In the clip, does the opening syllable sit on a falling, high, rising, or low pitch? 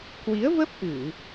rising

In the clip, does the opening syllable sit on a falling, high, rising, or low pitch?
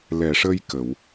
low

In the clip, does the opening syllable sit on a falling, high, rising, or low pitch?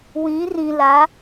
rising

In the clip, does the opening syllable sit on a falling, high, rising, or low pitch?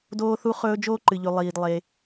high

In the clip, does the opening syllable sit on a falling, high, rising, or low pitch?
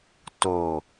low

